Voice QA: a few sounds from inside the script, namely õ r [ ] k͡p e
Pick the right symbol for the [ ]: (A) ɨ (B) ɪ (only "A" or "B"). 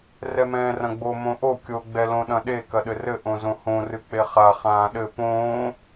A